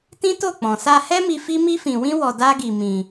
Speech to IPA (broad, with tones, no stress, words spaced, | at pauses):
tĩ˦to˦˨k͡pɔ̃˨ sa˧hɛ˦mi˧ fi˦mi˦fĩ˧wĩ˦ wɔ˧ da˦ ɡi˧ mĩ˧